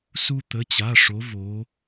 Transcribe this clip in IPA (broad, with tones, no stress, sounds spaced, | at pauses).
s u˥ t̪ ə˧˥˧ t͡ɕ a˧˥˧ ʂ o˧˥ v o˧˥